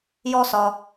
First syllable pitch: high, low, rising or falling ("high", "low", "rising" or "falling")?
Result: high